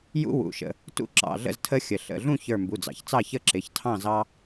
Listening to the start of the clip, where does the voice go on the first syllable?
high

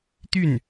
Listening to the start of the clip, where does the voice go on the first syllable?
falling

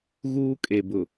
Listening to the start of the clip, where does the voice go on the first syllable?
high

